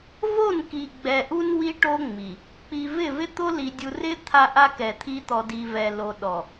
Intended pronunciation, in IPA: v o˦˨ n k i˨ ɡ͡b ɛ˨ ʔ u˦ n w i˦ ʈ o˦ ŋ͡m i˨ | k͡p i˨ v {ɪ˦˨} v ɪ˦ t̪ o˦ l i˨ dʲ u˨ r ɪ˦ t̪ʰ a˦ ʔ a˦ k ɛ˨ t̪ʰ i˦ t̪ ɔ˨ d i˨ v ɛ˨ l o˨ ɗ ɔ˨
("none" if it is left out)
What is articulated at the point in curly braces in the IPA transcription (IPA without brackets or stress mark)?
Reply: ɪ˦˨